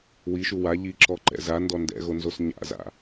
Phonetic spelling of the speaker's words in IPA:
w i ʃ u w a ʎ i ǁ ɔ ǃ ɛ̰ z a n d ɔ n d ɛ̰ ɣ o n z o s ɲ a̰ z a̰

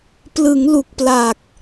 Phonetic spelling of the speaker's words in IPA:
p l ɯ˩˦ ŋ l u˨˩ k̚ p l a˨˩ k̚

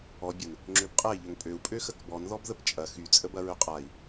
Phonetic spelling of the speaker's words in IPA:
ɔ bʲ ə n | ŋ͡ǁ ø b qʼ ɛ i̯ ʎ ø ŋ pʼ ø u̯ pʼ ø x ə k b ɔ n ð ɔ b ð ə p t͡ʃʼ ɐ x y t͡sʼ ə b ɐ ɹ ø qʼ a i̯

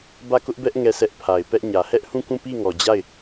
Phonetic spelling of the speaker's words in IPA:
b ä˦˨ k ʊ˦ ʔ b ɛ˦ ʔ ŋ ɛ˦˨ sʰ ɛ˦ ʔ pʰ a˨ ɪ̯ p ɛ˦ ʔ ɲ ä˨ h ɛ˦ ʔ h ũ˦˨ k ũ˦˨ p i˦˨ ŋ ɔ˨ d͡ʑ a˦˨ ɪ̯

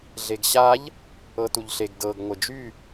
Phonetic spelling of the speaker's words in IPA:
ɮ e ɡ ɕ a ʎ | ɤ t u ʎ ɬ e ɡ d ɤ ɡ ŋʷ ɘ d͡ʒ y

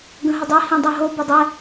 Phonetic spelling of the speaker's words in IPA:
ɡ ə̃ ɦ ɪ dˤ ɛ h ĩ dˤ ɛ ɦ o b ɪ dˤ ɛ

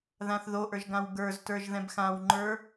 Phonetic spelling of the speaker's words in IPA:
ð ã θ ð o ʔ ə˞ ʒ ɡ ã w ɡ ə˞ z t ə˞ ʒ ð ɛ̃ b x ã w ŋ͡ǃ ə˞

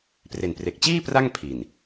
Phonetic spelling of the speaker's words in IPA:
p r e˨˩ n p r e˨˩ k̚ t͡ɕ iː˥˩ p r a˥˩ ŋ pʰ i˨˩ n

